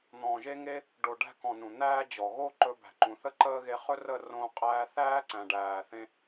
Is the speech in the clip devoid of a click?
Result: no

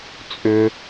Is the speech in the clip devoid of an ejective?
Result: no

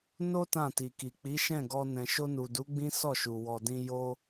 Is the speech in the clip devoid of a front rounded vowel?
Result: yes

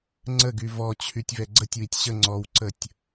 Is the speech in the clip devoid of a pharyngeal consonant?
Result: yes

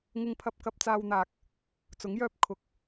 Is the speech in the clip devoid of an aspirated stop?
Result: no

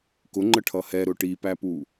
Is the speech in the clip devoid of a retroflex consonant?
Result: no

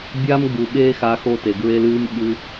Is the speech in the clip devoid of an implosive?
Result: no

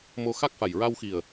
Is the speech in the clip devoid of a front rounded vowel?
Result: yes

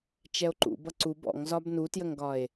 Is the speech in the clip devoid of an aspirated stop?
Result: yes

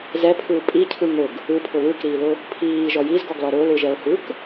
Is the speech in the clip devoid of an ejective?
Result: no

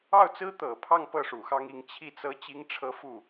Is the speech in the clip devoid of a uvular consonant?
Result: yes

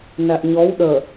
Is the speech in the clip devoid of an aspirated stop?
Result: yes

